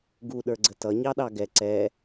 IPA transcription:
ɡ u ɗ ə˞ ɡ͡ǀ ə t ʌ ɲ ɑ ɗ ɑ ɡ ɛ ǀ ɛ

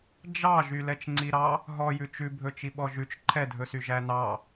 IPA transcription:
d͡ʒ ɑ ʒ y l ɛ t͡ʃ ŋ͡ǀ i ɾ ɑ | ɦ ɔ j ʉ t͡ʃ ʉ bʱ ɵ t͡ʃ i ɓ ɔ ʒ ʉ t͡ʃ ǃʰ ɛ dʱ ɵ s y ʒ æ n ɑ

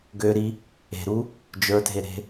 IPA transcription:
ɡ ø ɾ i | e̤ ɾ u | d͡ʒ ə˞ dʱ e ɾ e̤

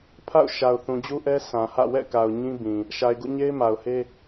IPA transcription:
pʰ a̰˦˨ ʊ̯ ʃ a˨ ʊ̯ θ ũ˨ d͡ʑ u˦ ʔ ɛ˦ s ã˨ h ä̰˦˨ w ɛ̰˦˨ k a˨ ʊ̯ ɲ ĩ˦ b ĩ˨ | ʃ a˨ ɪ̯ ɡ ṵ˦˨ ɲ e˦ ɪ̯ m a˨ ʊ̯ h e˦

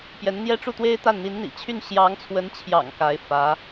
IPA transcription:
p j ɛ˧˥ n n̪ j ɛ˥ ʈ͡ʂ u˥˩ t̪ w e˥ ɪ̯ t̪ a˥˩ n n̪ i˧˥ n n̪ ḭ˨˩ t͡ɕʰ y˥˩ n ɕ j ɑ˧˥ ŋ t͡sʰ w ə˧˥ n t͡ɕʰ j ɑ̰˨˩ ŋ k a˧˥ ɪ̯ f ä˧˥

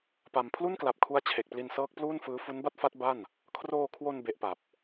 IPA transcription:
p a˧ m pʰ l u˥˩ n k l a˨˩ p̚ kʰ u˦˥ a̯ t͡ɕʰ e˨˩ k̚ p l i˧ n s ɤː˦˥ k̚ p l uː˥˩ n f ɯː˦˥ f u˦˥ n b a˥˩ t̚ f a˦˥ t̚ b a˥˩ n | kʰ r oː˧ kʰ w o˧ n b e˦˥ ʔ p a˨˩ p̚

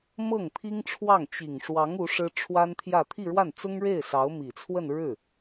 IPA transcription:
m ɤ˥˩ ŋ t̪ʰ i˥ ŋ ʈ͡ʂʰ w ɑ˥˩ ŋ t͡ɕ i˨˩ ŋ ʂ w ɑ˧˥ ŋ u˧˥ ʂ ɻ̩˥ ʈ͡ʂʰ w a˥ n t̪ʰ j ä˥˧ t̪ʰ i˥˧ ɻ w a˥˩ n t͡s ʊ˥ ŋ ɻ e˥˩ ɪ̯ s ɑ˧˥ ʊ̯ m i˨˩ t͡sʰ w ə˥˧ n ɻ ɻ̩˥˩

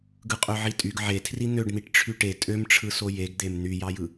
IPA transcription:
ɡ ɯ qʼ ø ʕ i tʼ y ɡ ʕ e tʰ r i n̪ ø ɖ n̪ i ʈ ʈ͡ʂʰ y ʈ e tʼ ø m ʈ͡ʂʰ ɯ s o j e ɡ d̪ e m n̪ y j ɑ j ɯ

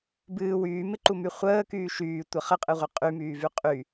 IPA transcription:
b ɨː w yː m ɪ ǃ u m y χʷ əː k yː ʃ yː tʷ ə χ ə qʼ ɨ ʁʷ ɨ qʼ y m yː v y qʼ y

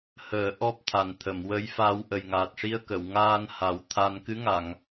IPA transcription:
h əː˨˩˦ ʔ ɔ˦˥ p̚ t̪ʰ a˨˩ n t̪ʰ ə˨˩˨ m w ə˧˥ j f a˧ w ʔ ə˨˩ j ŋ aː˨˩ t̚ ʂ i˧ ə̯ k ə˨˩˨ w ŋ aː˧ n h a˨˩˦ w t̪ʰ a˧ n k ɨ˧˥ ŋ a˨˩˨ ŋ

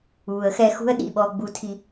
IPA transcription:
uː˨ ə̯ x ɛ˧ x ṳ˦ ə̯ ɗ ḭ˦˨ ɓ ɔ˧ ɡ͡b u˧ tʰ i˧

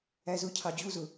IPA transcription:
æ z ʊ cʰ ɑ d͡ʑ u z ʊ

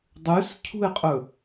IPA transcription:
dˤ ʉ s cʰ ṳ ɪ̯ qʼ ɵ

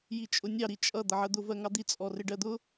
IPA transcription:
j i t͡ʃʼ ʊ nʲ ɑ ɾ i t͡ʃʼ ʌ d̪ ʌ ʕ ɜ d̪ ʊ v ɜ ŋ ɑ d̪ i t͡sʼ ɔ r ɪ ɖ ɜ d̪ ʊ

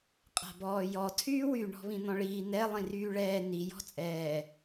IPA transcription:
qʼ a̤ b ɔː j ɔ tʰ yː w y ɳ ɔ̤ β ĩ n̪ ɔ̃ ɭ iː n̪ ɛ lˠ ĩ r yː ɭ ɛː n i j ɔ̤ t͡sʼ ɛː

